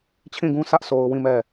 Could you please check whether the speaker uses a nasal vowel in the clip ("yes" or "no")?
yes